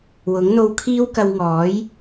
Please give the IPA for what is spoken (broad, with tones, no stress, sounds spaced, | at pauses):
w ʊ˨˥ ŋ n̪ o˧ w kʰ iː˥ w k ɐ˧ w ŋ ɔː˨˥ j